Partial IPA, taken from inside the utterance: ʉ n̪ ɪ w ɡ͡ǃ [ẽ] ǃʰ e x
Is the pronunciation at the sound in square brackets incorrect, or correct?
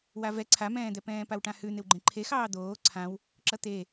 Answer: correct